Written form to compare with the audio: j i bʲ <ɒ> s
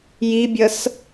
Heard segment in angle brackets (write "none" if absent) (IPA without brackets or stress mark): ʌ